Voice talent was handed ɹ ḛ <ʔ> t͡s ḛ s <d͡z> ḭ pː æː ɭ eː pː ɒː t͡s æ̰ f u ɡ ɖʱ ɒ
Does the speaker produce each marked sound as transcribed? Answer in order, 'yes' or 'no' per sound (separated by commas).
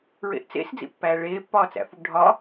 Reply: yes, yes